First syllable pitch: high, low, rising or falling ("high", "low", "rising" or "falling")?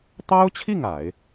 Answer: high